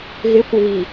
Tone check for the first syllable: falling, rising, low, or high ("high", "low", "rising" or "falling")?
rising